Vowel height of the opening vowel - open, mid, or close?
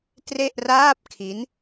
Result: mid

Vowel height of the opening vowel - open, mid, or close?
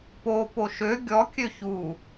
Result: mid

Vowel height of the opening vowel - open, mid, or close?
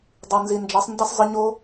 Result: close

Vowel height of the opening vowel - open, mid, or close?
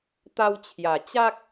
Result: open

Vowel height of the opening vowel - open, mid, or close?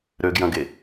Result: mid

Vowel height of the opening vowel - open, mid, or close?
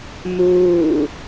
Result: close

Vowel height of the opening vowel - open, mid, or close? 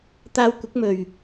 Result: open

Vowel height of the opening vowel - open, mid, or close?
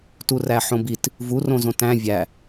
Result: close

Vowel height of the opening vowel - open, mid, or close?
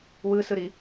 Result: close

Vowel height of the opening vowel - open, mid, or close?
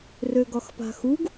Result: mid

